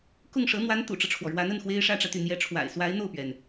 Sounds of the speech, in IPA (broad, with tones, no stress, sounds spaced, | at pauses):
k ʊ˥˩ ŋ ʂ ɤ˧˥ n̪ w a˧˥ n t̪ ṵ˨˩ ʈ͡ʂ ɤ˦ ʈ͡ʂʰ w ɔ˩ ɻ w a˧˥ n ə˥˩ n x w e˥ ɪ̯ ʂ ä˥ ʈ͡ʂ ä˨ t̪ y˥˩ n̪ j ɛ˧˥ ʈ͡ʂʰ w a̰˨˩ ɪ̯ s w a˧˥ ɪ̯ n̪ o˥˩ ʊ̯ p ɥ ɛ˩ n